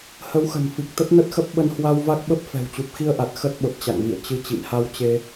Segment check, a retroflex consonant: absent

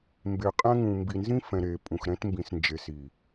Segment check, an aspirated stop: absent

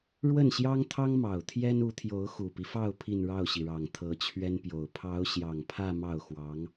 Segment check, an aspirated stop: present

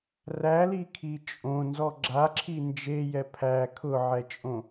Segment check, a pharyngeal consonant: present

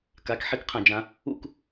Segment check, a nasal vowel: present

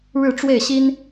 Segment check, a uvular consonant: absent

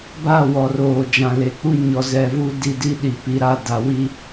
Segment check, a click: absent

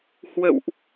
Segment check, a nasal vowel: absent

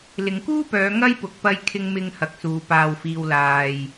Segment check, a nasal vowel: absent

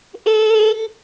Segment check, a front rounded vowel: absent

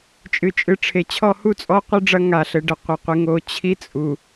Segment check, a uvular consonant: present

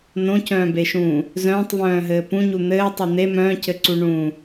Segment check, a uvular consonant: absent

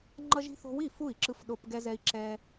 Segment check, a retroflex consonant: absent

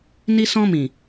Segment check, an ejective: absent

